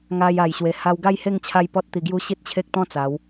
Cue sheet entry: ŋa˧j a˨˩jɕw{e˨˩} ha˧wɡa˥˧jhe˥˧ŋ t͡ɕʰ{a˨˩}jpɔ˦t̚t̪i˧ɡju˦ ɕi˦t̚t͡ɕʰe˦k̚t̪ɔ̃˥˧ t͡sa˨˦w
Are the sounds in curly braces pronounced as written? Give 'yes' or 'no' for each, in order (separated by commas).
yes, no